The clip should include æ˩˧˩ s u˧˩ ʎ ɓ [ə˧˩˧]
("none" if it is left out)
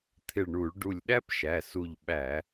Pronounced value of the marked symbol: æ˧˩˧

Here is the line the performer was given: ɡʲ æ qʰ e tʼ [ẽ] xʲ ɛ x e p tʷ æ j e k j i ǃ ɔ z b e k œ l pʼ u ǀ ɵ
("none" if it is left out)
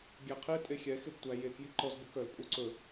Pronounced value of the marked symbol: e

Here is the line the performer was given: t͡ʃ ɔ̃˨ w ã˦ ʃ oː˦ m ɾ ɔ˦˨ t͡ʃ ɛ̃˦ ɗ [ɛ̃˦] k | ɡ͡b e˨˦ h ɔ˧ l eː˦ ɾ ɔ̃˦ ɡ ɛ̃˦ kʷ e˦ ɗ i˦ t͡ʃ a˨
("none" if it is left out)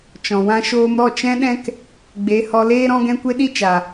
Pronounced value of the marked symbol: ɛ̃˦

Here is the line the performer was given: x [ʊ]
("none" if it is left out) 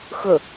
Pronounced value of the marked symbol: ʊ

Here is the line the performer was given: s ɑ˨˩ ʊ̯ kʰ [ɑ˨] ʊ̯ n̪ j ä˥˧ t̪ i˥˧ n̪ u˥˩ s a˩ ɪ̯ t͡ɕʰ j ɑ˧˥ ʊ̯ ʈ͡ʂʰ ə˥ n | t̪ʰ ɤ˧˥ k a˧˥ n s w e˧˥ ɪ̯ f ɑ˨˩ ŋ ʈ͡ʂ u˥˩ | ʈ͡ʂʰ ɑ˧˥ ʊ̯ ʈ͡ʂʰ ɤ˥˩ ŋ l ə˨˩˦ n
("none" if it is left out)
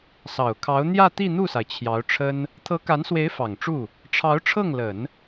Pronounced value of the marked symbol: ɑ˧˥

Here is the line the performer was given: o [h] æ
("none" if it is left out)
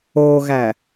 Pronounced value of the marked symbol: ɣ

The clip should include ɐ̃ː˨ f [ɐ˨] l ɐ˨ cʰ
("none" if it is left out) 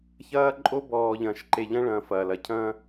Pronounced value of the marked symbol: ɐː˨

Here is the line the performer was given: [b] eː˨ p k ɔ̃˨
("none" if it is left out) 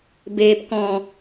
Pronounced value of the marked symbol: b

